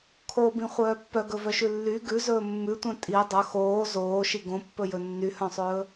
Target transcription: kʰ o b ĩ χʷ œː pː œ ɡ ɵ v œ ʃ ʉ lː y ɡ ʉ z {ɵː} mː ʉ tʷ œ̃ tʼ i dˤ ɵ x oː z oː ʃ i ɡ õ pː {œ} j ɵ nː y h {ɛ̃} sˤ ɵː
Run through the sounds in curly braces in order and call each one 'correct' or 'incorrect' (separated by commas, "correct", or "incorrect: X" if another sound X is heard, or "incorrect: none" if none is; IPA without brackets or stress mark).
correct, incorrect: ɵ, incorrect: œ̃